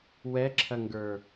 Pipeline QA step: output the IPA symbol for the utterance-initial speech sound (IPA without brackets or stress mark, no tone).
w